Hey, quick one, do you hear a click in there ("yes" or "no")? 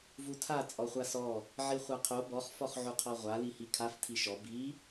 no